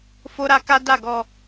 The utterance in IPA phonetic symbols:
f o˦ ɾ a˦ k a˦ d a˦˨ ɡ ɔ˧

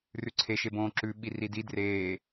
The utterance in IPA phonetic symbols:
r ʉ ǀʰ e ʃ e b õː ǁ ʉ ɓ i r i d i d r eː

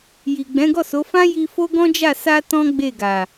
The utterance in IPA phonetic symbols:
j i˨ ɡ͡b ɛ̃˨˦ ɡ ɔ˦˨ s o˨˦ f ã˦ j i˧ f o˦ ɡ ɔ̃˦ d͡ʒ a˦˨ s a˧ t ɔ̃˦ ɡ͡b e˦˨ ɡ a˨

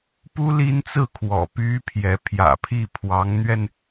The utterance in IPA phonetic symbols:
p u˥ l i˥ n t͡s ɹ̩˥˩ kʰ w ɔ̰˨˩ p y˥ pʰ j ɛ˧˥ pʰ j ä̰˨˩ pʰ i˥˩ pʰ w ɑ˧˥ ŋ n̪ ɥ ɛ˧ n

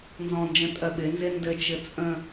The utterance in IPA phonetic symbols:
n z ɔ̃ n d͡ʒ ə̃ tʼ ɜ ɓ ɪ n z ɪ n d ɘ t͡ʃ ɘ t͡sʼ ə̃

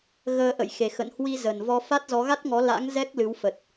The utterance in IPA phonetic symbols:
ɣ əː˧ ʔ ə̰˧˨ j x e˨˩ x ə̰˧˨ n h w i˧ z ə˨˩ n v ɔ˧ f a˦˥ t̚ z ɔ˨˦ ɣ a˦˥ t̚ ŋ ɔ˨˦ l a̰˧˥ ŋ z ɛ˦˥ k̚ l ɨ˨˦ w f ə˨˩ t̚

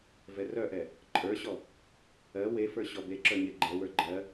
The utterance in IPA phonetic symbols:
v ɛ r œ ʔ ɛ | ǃʼ ə˞ ɕ ɔ | ɜ w e f ə˞ ɕ ɔ b e ǁ œ ɲ e ɡ͡ǃ ɛ w ə˞ ɡ͡ǃ ɜ

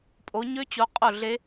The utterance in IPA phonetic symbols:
pʼ o˨˦ ɲ ø˦˥ t͡ɕ o˨˦ qʼ o˥˨ ɮ e˦˥

